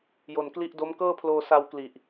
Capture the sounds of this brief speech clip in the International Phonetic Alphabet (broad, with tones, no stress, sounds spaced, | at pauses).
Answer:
j o˨˩ n k l i˦˥ ʔ d o˦˥ m k ɤː˥˩ pʰ l oː˧ s a˧ w k l i˨˩ ʔ